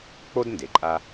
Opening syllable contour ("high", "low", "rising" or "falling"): high